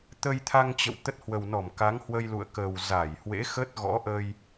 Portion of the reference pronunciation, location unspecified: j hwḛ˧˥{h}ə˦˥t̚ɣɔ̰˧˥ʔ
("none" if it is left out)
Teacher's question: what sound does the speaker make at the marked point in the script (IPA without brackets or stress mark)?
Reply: x